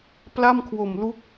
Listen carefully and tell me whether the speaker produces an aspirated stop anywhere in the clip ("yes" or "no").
yes